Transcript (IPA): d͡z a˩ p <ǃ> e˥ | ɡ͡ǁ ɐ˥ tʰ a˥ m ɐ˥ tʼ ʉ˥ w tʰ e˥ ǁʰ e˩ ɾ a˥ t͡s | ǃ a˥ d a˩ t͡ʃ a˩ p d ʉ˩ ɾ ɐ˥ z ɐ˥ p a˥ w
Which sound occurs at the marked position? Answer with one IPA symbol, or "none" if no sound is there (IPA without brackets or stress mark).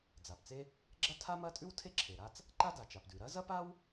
t͡s